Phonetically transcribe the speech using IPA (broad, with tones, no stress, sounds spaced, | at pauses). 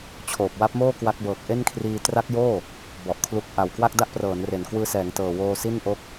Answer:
t͡ɕʰ oː˨˩ p̚ w a˦˥ p̚ m oː˥˩ k w a˦˥ k̚ b ɤː˨˩ k̚ ʔ e˥˩ n kʰ r iː˧ t r a˦˥ k̚ j oː˥˩ | b ɔ˨˩ ʔ kʰ l u˦˥ k̚ ʔ a˨˩ w k w a˥˩ k̚ d a˥˩ ʔ p r ɤː˩˦ n r e˨˩ n k w ɯː˧ s ɛː˩˦ ŋ t ɤː˨˩ w oː˧ s i˥˩ n ʔ o˦˥ k̚